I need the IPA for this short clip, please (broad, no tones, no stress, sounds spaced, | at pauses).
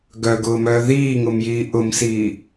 ɡ œ ɡ ʊː m œː ð iː ŋ ʊ m j iː ʔ ʊ m s iː